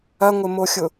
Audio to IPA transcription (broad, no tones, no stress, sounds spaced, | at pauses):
ɐ ŋʷ ɪ m o xʲ ʊ